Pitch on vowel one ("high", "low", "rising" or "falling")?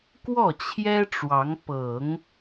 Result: falling